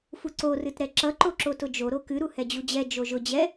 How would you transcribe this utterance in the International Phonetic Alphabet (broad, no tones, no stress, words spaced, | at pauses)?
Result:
fuǀo rɨtɾɛǁʌ ǃoǁotʊd͡ʒo ɾokɨ ɾuhɛd͡ʑud͡ʑɛ d͡ʒoʒʊ d͡ʑɛ